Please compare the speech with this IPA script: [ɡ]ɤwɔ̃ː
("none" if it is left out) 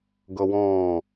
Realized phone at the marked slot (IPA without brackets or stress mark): ɡ